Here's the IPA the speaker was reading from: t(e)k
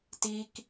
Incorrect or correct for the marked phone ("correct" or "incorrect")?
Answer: incorrect